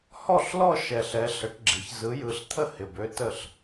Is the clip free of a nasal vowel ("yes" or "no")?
yes